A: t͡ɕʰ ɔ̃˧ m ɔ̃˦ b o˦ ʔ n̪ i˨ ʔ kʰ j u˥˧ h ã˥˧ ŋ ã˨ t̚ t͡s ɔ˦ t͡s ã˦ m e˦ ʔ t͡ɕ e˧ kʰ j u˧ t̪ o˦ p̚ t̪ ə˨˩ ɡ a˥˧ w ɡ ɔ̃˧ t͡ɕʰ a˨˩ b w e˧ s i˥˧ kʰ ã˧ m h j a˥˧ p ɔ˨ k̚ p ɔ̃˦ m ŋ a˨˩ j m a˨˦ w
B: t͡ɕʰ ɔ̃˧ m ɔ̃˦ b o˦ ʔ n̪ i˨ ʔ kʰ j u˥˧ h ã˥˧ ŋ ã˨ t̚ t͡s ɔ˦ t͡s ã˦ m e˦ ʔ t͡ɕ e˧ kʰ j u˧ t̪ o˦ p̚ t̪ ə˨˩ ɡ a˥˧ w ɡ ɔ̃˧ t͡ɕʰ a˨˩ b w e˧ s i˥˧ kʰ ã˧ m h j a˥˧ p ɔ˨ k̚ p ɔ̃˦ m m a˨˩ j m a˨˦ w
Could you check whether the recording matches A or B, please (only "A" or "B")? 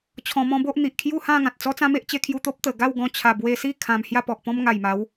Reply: A